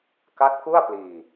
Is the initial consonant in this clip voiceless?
yes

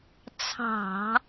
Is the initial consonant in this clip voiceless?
yes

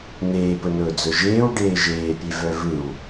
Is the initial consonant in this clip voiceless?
no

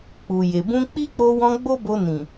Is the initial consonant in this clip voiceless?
yes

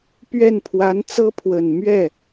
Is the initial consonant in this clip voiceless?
yes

